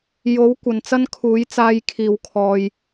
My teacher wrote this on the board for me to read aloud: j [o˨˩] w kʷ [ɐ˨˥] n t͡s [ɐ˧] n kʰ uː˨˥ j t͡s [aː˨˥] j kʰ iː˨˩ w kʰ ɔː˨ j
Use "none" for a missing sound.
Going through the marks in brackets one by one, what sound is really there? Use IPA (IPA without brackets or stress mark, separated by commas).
o˨˥, ɐ˨, ɐ˥, aː˨˧